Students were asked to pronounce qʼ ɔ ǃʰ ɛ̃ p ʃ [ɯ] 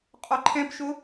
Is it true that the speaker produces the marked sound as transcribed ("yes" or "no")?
no